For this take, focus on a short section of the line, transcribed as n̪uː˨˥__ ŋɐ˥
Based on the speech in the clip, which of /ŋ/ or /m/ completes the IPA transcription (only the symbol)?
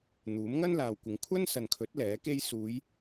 m